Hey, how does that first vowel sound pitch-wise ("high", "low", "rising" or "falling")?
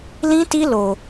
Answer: high